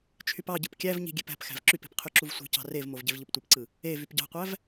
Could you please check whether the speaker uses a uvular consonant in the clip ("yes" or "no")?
yes